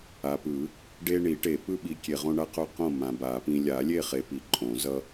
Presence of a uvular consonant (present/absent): present